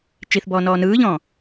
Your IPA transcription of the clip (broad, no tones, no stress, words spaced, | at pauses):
t͡ʃiθ bɔːnɔːnɯːʎɔ̃ː